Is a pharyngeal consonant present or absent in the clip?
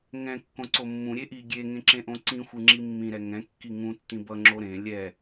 absent